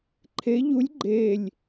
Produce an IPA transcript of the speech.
ǃʰ e ʎ u lʲ ɡ͡ǃ e lʲ

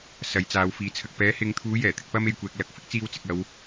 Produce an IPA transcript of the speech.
s ɐ˨˧ j t͡s aː˨˧ w f iː˨ t͡sʰ ɐ˨ k̚ p ɛː˨˥ h ɪ˨˧ ŋ t̪ʰ uː˨˥ j ɛː˨˩ t̪ ɪ˧ k̚ p ɐ˥ m e˨ j kʷ ɛː˨ k̚ l ɐ˨ k̚ f ɪ˥ k̚ t͡s iː˧ w t͡s ɪ˨ k̚ ɐ˨˧ w

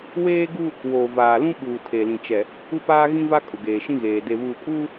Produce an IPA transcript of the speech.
w eː˦ ɡ u˦ | w oː˨ v aː˨ l ũ˦ ɓ uː˨ tʰ e˨ l ĩ˨ t͡ʃ ɛ˨ | u˦ p aː˦ ɣ ĩ˦ v a˦ kʼ ʊ˨ ɡ eː˨ ʃ ĩ˦ ɣ eː˨ d e˨ β uː˨ kʼ uː˦

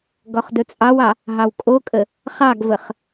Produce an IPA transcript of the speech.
ɡ ɔ χ d ɵ t͡sʼ ɑ w ɑ | ɦ ɑ w kʼ o kʼ ə | χ ɑ ɡ v ə χ

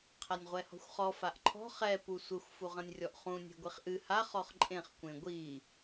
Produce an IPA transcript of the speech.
qʰ a nʲ ʁʷ ɛ h ɔ̤ xʷ χ ɔ f a ʔ ǃʰ ɔ̤ χ ɛ p u sʷ ɘ xʷ f u ʁ ɐ̃ nʲ rʲ ɔ ʔ χ ũ nʲ e̤ ɡʷ i χ ʔ ɨ h a χ ɔ χ ǃʼ ẽ χ kʷ ẽ ɡʷ i

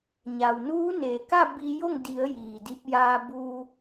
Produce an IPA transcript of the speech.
ɲ a˩ w n uː˧˥ n eː˩ k a˥˨ b i˧ j o˥˨ ŋ d i˩˧ ə̯ j iː˩ d i˧ p̚ j aː˧ b uː˧

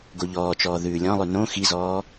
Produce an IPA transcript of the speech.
ɡ o ʎ ɔː t͡ʃ ɔː ð ʉː lʲ ɔ̃ lˠ ʉ n õ x i z ɔː

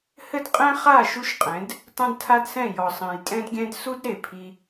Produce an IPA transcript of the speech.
h ɘ˦ d qʼ ɛ̃˦ χ a˦˨ ʃ u˦ ʃ qʼ ɛ̃˨˦ d | tˤ ɛ̃˦ d tʰ a˦ d s ɛ̃˦˨ j ɔ˨ sˤ ɛ̃˨ j tʼ ɛ̃˧ d ɡʲ ɛ̃˧ d s u˦ d ɾ e˨ pʰ i˧

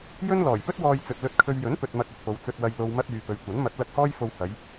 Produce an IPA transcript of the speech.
j ɵ˥ n l ɔː˨˩ j p ɵ˥ t̚ w ɔː˧ j t͡s ɵ˨ t̚ l ɵ˧ t̚ kʰ ɵ˧ ɥ j ɵ˨˥ n p ɵ˨ t̚ m ɐ˧ k̚ ɵ˨ t̚ p o˨˧ w t͡s ɵ˨ t̚ w ɐ˨ j l o˨ w m ɐ˧ t̚ yː˨ p ɵ˨˧ ɥ kʷ ɐ˨˥ n m ɐ˨˥ t̚ l ɐ˧ k̚ h ɔː˥ j f o˧ w h ɐ˨˧ j

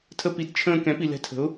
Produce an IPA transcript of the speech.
tʰ ə˧ p i˩˥ d t͡ʃʰ ə̃ː˧ k ɛ̃˩˥ p i˩ l ɛ̤˧ tʰ ə̤˩˥ ʊ̯

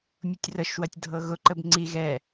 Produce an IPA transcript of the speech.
mʲ ʊ tʲ r ə ʃ w ɐ tʲ dʱ ɤ ɣ ʊ ǃ ə b ŋ͡ǀ i ɣ ɛ

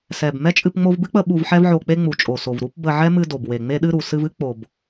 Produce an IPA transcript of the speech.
s ɛ˨ b m ɛ˦ t͡ʃʼ ɨ˧ p ŋ͡m o˧ v b ɨ˦ k͡p ə˧ ɓ u˧ v ħ ɛ˦ v ʕ o˧ k͡p e˦ ŋ͡m u˨ t͡ʃʼ o˨ s o˨ v ɾ u˦ p b ə˧ ʕ ɛ˦ m ɨ˧ d o˨ b w e˨ ŋ͡m e˧ ɗ ɨ˧ ɾ u˨ s ɨ˧ v ɨ˦ k͡p o˨ b

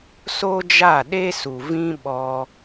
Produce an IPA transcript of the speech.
s o˦ d͡ʒ a˦˨ ɗ e˦ s u˨ v ĩ˦ ɓ ɔ˧

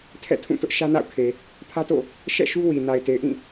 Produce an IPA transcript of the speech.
tʰ ɛ̰˦˨ tʰ ũ˦˨ t ʊ˦ ʔ ʃ ä˦ n a̰˦˨ ʊ̯ kʰ e˨ | pʰ ä˦ t o̰˦˨ | ʃ ɛ̰˦˨ ʃ u˦ w i˨ n a˨ ɪ̯ t e˨ ɪ̯ ʔ ĩ˦˨

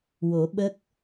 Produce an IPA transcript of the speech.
w o˨˩˦ ɓ ə˦˥ k̚

